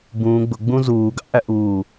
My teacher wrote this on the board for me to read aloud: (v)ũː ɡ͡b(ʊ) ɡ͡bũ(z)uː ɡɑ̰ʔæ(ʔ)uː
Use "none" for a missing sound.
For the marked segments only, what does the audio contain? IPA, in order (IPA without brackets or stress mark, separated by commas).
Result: b, ʊ, z, ʔ